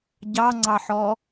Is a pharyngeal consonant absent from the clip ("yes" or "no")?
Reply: no